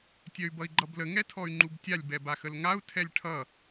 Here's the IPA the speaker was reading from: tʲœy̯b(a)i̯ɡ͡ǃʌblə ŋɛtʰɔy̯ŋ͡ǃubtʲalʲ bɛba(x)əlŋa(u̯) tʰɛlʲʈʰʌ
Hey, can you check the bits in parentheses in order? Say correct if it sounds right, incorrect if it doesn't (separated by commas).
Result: incorrect, correct, correct